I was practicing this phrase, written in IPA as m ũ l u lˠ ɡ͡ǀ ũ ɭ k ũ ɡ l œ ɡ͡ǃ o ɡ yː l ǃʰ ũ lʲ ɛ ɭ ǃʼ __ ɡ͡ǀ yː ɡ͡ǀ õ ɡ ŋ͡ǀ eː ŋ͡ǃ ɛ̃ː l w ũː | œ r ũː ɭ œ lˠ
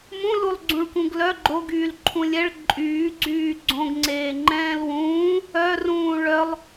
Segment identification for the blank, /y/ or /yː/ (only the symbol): yː